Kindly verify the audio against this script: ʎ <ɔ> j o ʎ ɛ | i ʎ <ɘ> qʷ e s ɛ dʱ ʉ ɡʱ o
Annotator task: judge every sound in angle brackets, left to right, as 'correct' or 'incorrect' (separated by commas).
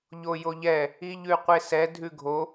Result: incorrect, incorrect